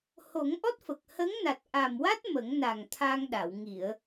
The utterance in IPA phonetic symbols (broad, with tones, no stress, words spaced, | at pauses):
ho˨˩˦ŋ ʔɔ˦˥t̚fə˨˩k̚ hə˧˥ŋna˨˩t̚ʔa˨˩mwa˦˥t̚ mə˨˩˦ŋ na˨˩ŋt̪ʰa˧ŋɗa˨˩˨w ŋi˨˩˨ə̯